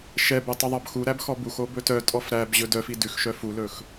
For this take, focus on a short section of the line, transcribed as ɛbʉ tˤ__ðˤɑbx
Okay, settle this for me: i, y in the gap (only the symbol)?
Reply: y